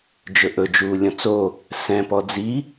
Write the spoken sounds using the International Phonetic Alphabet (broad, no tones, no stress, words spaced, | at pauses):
d͡ʒɵʔɵ d͡ʒuːlʲɔ̃t͡so | sɛ̃ pɔd͡zi